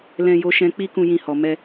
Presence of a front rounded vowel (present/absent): absent